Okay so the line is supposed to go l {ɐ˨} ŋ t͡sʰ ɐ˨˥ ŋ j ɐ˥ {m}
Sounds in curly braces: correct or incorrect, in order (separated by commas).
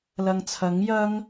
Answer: correct, incorrect